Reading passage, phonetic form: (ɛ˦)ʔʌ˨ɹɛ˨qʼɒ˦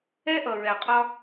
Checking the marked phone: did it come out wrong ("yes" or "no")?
no